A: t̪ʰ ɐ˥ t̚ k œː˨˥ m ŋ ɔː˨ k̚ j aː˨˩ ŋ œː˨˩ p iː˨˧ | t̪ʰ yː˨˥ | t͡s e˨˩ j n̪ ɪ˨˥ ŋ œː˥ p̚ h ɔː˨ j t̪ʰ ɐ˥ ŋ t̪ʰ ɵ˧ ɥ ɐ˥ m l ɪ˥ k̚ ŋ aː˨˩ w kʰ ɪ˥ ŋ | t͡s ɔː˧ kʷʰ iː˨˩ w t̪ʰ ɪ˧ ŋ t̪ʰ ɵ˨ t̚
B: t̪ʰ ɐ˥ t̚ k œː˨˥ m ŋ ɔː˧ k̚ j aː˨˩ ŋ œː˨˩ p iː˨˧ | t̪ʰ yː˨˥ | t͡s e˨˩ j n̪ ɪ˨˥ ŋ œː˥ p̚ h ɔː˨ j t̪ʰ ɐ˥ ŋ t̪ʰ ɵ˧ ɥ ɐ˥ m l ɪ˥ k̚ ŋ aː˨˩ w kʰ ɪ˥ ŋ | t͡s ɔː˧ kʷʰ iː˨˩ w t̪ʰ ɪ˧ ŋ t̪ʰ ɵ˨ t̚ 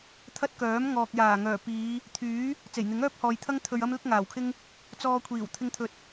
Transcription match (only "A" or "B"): A